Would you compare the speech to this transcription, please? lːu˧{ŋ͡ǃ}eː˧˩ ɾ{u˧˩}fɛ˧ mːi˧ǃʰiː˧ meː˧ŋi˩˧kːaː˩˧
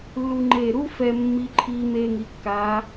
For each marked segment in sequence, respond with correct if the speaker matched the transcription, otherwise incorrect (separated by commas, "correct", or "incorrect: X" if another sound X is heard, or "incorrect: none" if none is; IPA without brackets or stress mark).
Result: correct, incorrect: u˥